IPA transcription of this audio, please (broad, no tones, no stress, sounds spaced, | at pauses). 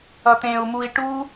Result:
ʌ t̪ ẽ u̯ m u i̯ ʈ u